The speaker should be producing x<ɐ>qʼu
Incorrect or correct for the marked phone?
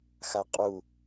incorrect: a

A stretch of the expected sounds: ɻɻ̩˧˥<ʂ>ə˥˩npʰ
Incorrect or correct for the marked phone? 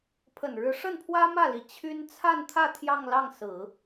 correct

